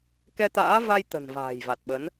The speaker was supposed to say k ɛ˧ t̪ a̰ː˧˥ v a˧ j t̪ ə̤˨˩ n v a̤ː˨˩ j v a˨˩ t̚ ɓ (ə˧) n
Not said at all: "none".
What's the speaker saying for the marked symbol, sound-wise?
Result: ə˨˦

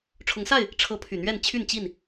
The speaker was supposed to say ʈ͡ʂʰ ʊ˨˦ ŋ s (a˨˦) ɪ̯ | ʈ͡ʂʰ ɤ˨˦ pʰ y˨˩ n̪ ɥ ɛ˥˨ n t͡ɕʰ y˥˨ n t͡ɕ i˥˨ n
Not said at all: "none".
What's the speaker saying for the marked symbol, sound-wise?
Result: a˥˨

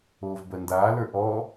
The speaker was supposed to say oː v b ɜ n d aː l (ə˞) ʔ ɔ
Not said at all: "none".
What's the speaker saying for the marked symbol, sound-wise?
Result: ə˞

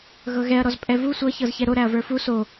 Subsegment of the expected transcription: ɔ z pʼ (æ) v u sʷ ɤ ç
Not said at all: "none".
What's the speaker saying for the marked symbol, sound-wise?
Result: ɛ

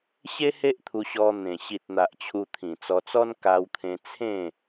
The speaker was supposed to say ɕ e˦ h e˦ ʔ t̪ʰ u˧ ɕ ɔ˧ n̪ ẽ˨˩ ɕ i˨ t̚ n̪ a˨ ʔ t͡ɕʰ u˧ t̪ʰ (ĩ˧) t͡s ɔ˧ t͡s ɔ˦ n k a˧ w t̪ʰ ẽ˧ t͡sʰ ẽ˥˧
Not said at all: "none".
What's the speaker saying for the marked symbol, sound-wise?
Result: ĩ˨˩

